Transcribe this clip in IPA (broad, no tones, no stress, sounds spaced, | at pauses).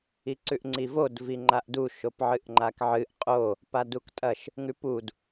i ǀ ʉ ʔ ŋ͡ǀ i v o d v i ŋ͡ǃ a ʔ d u ʃ o p ʕ ɨ ʔ ŋ͡ǃ a k ʕ ɨ ʔ qʼ o | p a d u k tʼ ɐ ʃ | ŋ ʉ p u d